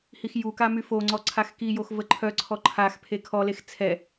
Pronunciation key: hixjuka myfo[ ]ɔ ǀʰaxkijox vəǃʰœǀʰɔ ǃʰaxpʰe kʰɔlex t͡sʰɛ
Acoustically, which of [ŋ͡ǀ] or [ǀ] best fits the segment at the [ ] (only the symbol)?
ŋ͡ǀ